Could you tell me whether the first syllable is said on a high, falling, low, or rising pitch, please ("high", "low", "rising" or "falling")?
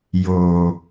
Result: low